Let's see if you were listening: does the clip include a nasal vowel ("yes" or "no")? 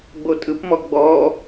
no